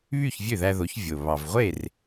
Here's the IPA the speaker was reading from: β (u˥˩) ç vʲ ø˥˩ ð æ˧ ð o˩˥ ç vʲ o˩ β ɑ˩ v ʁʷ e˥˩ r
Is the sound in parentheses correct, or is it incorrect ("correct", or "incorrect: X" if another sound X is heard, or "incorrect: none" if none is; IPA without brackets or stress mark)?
incorrect: y˥˩